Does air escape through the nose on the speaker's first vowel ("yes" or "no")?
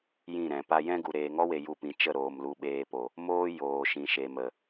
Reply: yes